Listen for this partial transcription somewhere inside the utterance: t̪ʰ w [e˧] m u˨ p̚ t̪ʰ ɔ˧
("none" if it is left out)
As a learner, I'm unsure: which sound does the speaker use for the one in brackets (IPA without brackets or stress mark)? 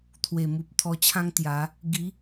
e˨˩